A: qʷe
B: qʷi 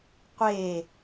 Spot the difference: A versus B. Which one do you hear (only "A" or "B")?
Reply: A